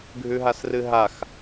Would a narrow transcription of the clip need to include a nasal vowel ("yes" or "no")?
no